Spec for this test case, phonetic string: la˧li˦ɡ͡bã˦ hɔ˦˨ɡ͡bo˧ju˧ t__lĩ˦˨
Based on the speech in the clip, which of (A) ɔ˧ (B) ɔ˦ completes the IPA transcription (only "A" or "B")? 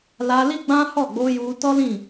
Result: B